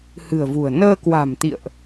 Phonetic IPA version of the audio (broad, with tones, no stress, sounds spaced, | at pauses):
h ɨ̤˨˩ ə̯ v ṳ˨˩ ə̯ n əː˧ k w a̤˨˩ m t̪ ḭ˧˨ ə̯ ʔ